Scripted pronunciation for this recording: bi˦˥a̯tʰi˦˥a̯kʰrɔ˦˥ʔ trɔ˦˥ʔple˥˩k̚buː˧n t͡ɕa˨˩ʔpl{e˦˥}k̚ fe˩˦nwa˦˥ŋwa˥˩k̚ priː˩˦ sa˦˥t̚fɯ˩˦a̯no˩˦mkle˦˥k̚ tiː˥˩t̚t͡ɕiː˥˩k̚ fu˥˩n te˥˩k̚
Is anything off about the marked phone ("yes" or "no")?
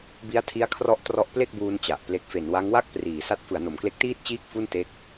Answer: no